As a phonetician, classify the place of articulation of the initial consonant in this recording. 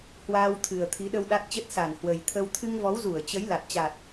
glottal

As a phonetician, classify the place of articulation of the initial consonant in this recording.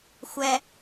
velar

